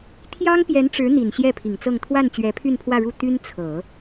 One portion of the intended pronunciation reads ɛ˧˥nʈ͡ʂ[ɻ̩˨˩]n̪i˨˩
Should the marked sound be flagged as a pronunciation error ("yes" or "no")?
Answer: yes